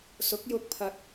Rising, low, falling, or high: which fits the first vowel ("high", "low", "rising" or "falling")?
rising